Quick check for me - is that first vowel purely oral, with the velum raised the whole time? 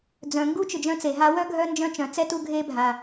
no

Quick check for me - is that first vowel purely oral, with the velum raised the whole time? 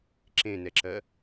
no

